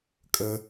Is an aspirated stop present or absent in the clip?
absent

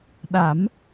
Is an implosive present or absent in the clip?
present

